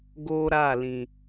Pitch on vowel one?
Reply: high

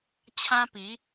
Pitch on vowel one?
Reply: high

